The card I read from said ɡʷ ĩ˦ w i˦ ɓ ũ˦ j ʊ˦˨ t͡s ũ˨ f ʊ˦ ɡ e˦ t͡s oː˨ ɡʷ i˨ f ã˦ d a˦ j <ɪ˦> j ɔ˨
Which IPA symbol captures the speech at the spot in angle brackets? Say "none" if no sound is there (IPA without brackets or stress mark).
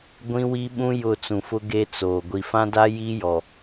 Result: i˦